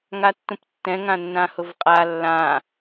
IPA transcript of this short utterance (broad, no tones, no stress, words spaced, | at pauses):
ŋatːũptːɛ̃ ŋãnːãhʊvqʼa lːã